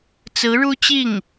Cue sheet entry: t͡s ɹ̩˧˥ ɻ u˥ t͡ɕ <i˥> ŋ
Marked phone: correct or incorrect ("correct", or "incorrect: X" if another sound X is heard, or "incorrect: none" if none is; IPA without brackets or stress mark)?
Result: incorrect: i˥˩